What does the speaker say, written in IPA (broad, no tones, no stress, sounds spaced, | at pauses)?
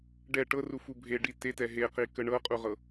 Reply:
ɖ ɛ ʈ ɤ r u f u bʱ e ɖ i t e t ɛ ɦ e q i k ə ɳ ɤ qʼ u ʁ ɤ